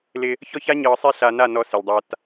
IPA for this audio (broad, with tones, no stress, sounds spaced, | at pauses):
l ɪ˦ | ç ɔ˦ ç a˦ ɲ ɤː˨ sˤ e˦ ɬ a˨ n a˦˨ n ɔ˦ s ɪ˨ lʲ dˤ a˦ t